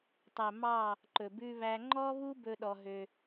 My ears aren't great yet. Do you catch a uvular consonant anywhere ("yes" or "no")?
no